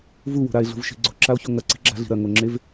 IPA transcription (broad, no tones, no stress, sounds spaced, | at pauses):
v u w o̤ ɾ a e̯ ɮ ṳ v ʃ i̤ ɡ͡ǀ o̤ ǁ a o̯ ç o ŋ ɐ ǀ i̤ ɡ͡ǁ a̤ ɮ i̤ ɾ ɐ ŋ o ŋ͡ǁ e v